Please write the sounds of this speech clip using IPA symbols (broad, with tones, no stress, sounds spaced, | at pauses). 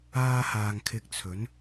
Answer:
aː˥ h aː˧ ŋ kʰ ɪ˧ k̚ t͡sʰ ɵ˨˥ n